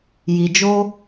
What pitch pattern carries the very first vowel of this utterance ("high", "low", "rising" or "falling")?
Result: low